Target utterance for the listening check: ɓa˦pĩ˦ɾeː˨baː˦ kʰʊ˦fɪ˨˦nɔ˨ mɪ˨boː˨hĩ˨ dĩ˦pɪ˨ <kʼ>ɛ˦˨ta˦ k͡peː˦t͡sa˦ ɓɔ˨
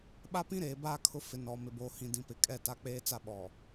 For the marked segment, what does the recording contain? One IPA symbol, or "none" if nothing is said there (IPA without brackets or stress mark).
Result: kʼ